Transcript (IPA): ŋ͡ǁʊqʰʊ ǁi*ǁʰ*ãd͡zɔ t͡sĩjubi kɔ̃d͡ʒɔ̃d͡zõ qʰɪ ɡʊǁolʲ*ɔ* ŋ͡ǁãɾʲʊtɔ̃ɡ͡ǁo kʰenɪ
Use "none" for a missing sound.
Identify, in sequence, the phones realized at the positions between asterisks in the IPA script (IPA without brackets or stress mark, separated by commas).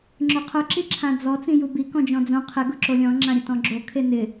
ǁʰ, ɔ̃